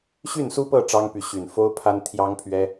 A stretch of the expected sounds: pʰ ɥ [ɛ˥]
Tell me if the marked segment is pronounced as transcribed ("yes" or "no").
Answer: yes